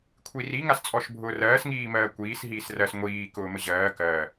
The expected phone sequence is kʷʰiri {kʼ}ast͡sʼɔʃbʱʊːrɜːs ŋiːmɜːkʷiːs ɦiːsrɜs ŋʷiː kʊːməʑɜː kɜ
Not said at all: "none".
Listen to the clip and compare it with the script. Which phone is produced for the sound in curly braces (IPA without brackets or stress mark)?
ŋ